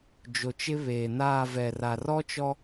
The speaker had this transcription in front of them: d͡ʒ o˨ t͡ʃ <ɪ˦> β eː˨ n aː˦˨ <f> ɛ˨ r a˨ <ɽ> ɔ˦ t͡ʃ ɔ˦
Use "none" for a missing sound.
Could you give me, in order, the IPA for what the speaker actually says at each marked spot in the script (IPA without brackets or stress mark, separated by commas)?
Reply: ɪ˦, v, r